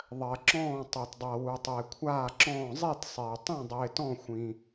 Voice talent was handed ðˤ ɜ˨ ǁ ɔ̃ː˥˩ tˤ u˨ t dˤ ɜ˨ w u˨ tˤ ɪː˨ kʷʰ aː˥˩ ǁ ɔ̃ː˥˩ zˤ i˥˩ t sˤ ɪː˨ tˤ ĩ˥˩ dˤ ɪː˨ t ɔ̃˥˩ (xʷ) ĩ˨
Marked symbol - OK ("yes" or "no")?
yes